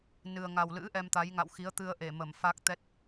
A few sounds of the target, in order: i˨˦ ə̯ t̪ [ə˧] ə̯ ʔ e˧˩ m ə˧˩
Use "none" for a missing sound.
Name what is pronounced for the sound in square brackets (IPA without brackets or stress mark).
ɨ˧